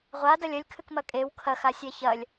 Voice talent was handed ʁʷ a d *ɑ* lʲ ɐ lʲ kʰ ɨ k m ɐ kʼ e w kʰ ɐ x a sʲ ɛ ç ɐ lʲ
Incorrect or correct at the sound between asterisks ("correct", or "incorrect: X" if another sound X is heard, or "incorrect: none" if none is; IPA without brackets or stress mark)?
incorrect: ɐ